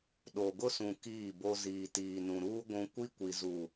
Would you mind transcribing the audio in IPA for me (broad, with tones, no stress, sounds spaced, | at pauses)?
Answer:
ɗ o˨ ɡ ʊ˦ s ũ˨ k iː˦˨ b o˦ z iː˨ t iː˨ n ũ˨ ɾ uː˦ ɡʷ ũ˦ kʷ i˦ kʷ i˨ z u˨